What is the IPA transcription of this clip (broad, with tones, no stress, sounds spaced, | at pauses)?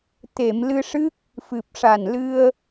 t̪ e˨˩˨ m l ɨ˧ ʂ ɨ˦˥ k̚ | f ɨ˨˩ p̚ ʂ a˨˩ n l ɨ˧ ə̯